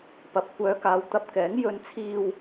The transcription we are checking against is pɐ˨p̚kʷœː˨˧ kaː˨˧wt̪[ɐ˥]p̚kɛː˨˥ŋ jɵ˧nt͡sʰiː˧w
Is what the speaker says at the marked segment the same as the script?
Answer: no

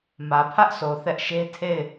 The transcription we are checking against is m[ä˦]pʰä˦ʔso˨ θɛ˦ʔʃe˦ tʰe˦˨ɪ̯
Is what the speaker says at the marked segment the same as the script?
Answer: no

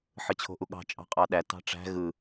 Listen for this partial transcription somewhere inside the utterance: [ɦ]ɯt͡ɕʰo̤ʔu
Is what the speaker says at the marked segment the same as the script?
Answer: no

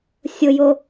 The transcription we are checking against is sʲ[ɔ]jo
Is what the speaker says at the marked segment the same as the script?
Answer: no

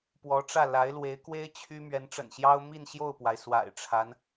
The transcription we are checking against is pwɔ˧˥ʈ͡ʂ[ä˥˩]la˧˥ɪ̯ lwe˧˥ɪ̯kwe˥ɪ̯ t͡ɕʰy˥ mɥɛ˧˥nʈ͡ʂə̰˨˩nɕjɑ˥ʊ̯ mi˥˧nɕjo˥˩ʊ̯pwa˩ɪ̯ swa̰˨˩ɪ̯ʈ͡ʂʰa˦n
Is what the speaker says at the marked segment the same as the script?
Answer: yes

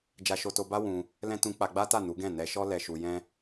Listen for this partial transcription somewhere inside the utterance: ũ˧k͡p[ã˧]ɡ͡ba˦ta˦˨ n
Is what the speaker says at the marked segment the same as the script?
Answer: no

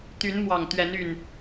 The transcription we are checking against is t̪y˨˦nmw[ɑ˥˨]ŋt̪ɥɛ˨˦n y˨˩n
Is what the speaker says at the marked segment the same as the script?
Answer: no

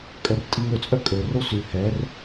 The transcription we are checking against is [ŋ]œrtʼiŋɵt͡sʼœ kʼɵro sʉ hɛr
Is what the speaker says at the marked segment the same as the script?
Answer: no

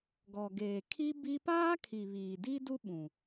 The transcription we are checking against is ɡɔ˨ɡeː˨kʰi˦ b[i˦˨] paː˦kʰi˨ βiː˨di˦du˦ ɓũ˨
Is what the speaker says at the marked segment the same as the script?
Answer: no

